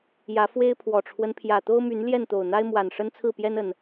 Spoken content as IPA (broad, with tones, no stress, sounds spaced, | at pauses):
j ä˨˦ f w e˦ ɪ̯ pʰ w ɔ˨˩ ʈ͡ʂʰ w ə˦ n pʰ j ä˨˩ t̪ o˦ ʊ̯ m y˨˦ n l j ɛ˥˨ n t̪ o˨˩ ʊ̯ n̪ a˦ ɪ̯ m w a˨˩ n ʂ ə˦ n t͡sʰ ɹ̩˥˨ p j ɛ˦ n ə˨˩ n